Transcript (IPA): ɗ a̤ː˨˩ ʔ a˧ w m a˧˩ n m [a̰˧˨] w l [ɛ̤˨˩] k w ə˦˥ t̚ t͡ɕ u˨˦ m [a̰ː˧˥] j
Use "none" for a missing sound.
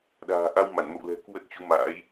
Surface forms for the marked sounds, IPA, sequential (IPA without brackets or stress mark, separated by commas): ə̰˧˨, ɛ̤˨˩, a̰ː˧˥